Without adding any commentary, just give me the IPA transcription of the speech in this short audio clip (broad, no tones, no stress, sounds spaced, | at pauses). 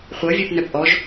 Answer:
χʷ ɤ vʲ ɛ p n œ p ʔ ɔ ʒ